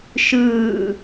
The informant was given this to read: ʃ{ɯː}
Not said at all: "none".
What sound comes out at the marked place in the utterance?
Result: ɯː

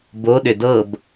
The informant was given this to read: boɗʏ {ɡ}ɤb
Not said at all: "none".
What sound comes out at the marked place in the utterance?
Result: d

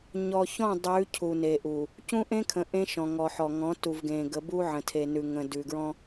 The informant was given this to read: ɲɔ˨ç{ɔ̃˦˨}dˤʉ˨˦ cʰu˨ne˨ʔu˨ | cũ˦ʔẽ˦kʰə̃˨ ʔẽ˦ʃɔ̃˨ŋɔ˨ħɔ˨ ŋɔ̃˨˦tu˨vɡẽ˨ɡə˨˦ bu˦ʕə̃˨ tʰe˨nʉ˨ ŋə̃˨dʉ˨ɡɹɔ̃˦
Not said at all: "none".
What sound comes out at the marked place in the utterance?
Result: ɔ̃˦˨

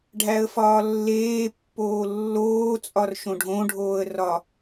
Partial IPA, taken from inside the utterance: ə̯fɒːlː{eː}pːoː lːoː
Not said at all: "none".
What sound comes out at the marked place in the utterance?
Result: eː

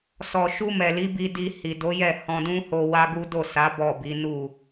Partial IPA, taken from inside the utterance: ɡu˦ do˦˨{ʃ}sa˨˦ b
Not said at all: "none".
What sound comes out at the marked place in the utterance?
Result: none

